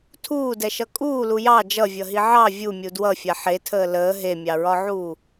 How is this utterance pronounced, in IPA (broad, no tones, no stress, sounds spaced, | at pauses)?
tʰ uː d ɛ ʃ ʌ kʼ uː l u j ɑ d͡ʒ ʌ vʲ ʌ ɦ i ʕ ɑ vʲ u mʲ u d w ʌ fʲ a ħ e tʰ əː l əː ɦ e mʲ ɑ ɹ ɒ ʕ uː